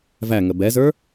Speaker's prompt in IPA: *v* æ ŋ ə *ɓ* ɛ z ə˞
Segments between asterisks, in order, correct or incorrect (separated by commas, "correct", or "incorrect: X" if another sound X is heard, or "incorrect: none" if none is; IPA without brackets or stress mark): correct, incorrect: b